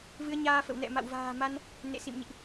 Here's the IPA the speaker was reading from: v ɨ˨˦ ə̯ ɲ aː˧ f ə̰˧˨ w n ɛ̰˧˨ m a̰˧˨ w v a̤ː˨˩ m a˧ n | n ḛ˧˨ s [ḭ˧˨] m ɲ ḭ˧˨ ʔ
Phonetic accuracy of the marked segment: correct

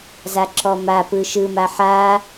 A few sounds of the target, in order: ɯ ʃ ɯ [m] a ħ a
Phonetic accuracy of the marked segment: correct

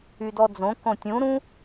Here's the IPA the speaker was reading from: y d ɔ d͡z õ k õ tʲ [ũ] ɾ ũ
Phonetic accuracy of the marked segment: correct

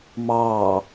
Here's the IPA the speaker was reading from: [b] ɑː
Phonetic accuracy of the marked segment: incorrect: m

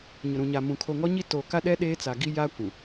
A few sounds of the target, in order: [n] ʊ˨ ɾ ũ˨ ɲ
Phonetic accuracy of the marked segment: incorrect: ɲ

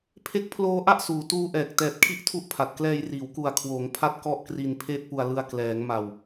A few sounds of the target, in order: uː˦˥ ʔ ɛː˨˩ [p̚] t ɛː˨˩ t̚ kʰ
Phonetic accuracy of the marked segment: incorrect: k̚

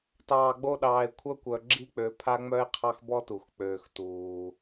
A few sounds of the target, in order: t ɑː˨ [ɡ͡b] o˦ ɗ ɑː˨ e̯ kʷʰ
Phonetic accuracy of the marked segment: correct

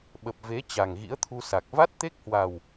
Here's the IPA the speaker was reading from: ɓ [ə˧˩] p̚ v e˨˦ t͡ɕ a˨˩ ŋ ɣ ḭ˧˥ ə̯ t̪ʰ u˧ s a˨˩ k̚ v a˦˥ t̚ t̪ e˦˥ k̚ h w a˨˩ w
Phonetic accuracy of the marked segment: incorrect: ə˨˩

